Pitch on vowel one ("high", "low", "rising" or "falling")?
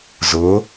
rising